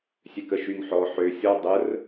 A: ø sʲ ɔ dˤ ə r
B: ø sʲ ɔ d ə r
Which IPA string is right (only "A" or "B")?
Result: A